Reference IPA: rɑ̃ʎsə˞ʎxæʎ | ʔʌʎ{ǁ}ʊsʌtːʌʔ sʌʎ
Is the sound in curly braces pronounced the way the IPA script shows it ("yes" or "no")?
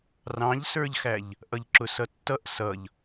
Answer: yes